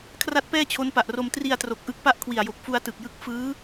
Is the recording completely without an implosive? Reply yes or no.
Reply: yes